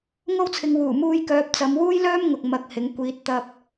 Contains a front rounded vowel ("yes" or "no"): yes